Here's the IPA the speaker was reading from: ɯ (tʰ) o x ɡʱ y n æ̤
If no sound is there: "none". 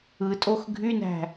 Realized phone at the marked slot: tʼ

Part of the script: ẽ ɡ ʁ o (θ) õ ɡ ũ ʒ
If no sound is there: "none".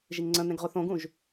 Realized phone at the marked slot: θ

